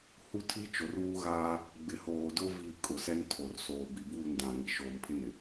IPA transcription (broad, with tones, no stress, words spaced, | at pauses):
hu˦ tʰi˦ t͡ʃo˨ruː˦ɣaː˦ | ɡ͡bɪ˨hoː˨dʊ˦ vi˦˨kʼʊ˨ sɛ˦ntʰo˨r soː˨bi˨ buː˦˨ndã˨ŋi˨ ʃoː˨mpʰɪ˦nɪ˨